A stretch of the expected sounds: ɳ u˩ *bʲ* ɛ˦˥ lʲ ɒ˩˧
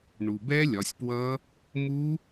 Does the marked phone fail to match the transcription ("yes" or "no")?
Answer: yes